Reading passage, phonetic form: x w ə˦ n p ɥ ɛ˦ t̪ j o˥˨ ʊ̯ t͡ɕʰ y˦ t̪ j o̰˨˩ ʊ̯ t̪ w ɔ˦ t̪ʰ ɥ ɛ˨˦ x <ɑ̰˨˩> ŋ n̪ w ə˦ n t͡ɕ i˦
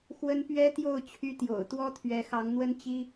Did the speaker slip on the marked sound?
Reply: yes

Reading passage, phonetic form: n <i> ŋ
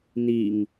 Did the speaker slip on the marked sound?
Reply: no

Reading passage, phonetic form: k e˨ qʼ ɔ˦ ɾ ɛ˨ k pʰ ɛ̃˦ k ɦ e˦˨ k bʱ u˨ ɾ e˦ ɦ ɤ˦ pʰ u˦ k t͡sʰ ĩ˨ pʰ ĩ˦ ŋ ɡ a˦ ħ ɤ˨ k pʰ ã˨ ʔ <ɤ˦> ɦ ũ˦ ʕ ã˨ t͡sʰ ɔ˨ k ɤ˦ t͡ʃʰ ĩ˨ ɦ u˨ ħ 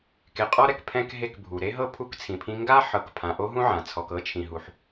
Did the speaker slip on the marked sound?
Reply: yes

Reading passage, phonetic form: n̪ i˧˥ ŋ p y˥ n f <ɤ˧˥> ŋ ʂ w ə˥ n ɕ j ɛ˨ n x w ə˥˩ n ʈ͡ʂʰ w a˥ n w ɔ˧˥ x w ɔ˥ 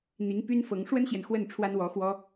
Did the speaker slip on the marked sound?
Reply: no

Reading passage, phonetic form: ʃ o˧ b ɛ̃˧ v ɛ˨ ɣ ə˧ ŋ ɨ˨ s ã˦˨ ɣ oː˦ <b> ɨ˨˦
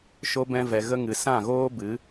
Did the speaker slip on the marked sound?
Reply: no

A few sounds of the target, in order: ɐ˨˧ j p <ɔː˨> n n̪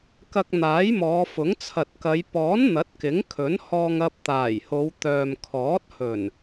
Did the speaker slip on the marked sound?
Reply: yes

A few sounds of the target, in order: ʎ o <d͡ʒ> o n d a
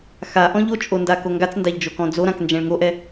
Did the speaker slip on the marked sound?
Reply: yes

